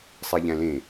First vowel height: high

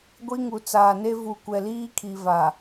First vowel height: high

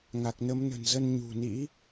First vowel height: low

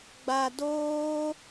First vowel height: low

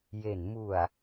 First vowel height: mid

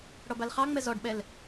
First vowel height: mid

